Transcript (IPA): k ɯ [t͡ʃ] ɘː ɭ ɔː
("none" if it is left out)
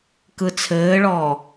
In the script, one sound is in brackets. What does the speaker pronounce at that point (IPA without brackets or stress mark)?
t͡sʰ